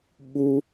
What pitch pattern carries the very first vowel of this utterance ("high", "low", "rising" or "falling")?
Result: high